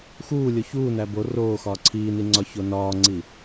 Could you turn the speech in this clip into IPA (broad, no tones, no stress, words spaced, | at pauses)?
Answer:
xuːlʲo çuːnæ bo roː xɒːǀʰiːni ŋ͡ǀɒçonɒːŋ͡ǀi